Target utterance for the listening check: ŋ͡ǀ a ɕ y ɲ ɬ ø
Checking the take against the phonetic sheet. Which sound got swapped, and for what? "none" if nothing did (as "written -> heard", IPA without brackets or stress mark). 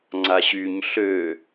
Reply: none